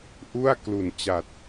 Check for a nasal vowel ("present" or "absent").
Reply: absent